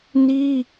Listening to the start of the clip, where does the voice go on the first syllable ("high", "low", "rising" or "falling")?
high